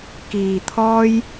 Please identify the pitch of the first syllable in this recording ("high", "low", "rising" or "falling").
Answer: low